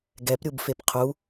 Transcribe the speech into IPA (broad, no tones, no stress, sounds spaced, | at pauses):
ɡ ɛ p ɾʲ u b f e p qʰ u